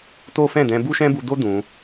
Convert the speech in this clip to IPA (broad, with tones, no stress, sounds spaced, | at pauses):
t o˦ f ɛ̃˦˨ d ɛ̃˧ b u˦ ʃ ɛ̃˦ b u˧ d o˦ d ũ˧